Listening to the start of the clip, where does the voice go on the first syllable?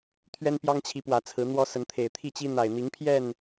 high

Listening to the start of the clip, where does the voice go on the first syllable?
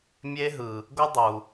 high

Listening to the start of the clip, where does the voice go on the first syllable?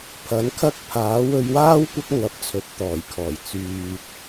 rising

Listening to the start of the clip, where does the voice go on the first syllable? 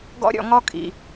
high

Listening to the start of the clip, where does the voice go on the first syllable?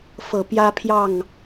low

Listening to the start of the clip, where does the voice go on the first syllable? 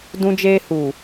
high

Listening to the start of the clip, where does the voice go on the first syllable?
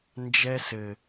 high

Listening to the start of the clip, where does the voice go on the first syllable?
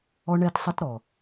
high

